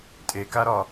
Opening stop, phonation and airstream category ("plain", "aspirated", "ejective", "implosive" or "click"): ejective